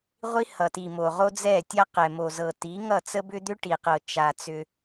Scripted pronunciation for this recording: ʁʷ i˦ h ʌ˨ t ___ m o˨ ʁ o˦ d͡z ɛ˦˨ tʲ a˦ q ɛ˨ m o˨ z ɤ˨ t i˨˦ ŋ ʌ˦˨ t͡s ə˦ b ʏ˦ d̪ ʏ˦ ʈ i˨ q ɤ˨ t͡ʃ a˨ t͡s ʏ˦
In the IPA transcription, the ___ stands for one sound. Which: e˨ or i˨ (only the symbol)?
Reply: i˨